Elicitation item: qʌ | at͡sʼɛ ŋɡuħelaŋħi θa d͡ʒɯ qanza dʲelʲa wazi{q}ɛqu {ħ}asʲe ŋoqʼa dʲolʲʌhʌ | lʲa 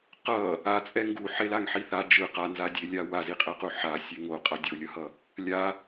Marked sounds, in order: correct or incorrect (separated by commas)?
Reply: incorrect, correct